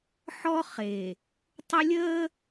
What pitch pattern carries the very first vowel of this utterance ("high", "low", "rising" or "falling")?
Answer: high